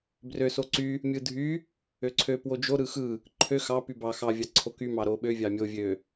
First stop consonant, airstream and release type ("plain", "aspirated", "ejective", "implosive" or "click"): plain